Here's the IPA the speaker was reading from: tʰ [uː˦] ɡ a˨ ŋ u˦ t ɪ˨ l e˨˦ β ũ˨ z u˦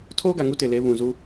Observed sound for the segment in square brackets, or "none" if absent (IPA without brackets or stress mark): oː˦